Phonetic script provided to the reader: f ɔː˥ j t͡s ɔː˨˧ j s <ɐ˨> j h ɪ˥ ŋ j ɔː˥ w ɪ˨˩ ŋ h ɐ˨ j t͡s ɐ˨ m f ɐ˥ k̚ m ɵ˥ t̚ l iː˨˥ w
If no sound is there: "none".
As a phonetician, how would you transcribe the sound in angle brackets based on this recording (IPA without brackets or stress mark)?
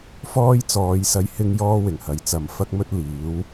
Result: ɐ˧